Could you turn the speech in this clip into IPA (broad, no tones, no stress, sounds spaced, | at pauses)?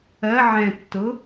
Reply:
ɜ ʕ ɛ̃ tː ʊ